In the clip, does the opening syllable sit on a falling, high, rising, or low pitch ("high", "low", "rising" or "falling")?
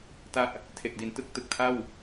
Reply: falling